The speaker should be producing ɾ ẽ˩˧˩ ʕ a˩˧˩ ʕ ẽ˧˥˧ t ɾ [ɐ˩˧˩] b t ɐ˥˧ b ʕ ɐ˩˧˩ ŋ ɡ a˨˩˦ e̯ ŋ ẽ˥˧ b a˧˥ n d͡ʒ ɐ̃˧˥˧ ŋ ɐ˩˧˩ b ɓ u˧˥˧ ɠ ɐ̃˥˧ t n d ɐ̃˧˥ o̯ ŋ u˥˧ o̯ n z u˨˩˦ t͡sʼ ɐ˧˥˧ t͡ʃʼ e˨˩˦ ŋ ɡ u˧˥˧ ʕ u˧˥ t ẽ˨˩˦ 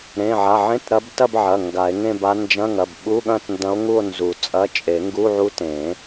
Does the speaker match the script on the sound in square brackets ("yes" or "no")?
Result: no